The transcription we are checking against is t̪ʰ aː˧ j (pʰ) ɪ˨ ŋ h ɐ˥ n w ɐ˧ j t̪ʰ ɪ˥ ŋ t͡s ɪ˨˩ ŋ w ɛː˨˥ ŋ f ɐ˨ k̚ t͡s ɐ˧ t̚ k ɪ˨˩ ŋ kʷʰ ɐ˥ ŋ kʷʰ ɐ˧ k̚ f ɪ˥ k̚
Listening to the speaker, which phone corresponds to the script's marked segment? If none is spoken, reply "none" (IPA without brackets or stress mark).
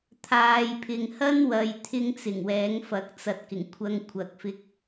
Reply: pʰ